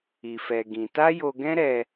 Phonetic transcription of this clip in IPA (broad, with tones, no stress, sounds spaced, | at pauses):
i˧ f ɛ˧ ɡ ĩ˧ t a˦ j o˧ ɡ ɛ̃˦ ɾ ɛ˧